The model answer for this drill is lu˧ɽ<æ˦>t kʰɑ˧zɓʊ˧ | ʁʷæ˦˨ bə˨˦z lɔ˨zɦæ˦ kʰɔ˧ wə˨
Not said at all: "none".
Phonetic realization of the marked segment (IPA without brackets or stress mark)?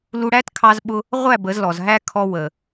æ˦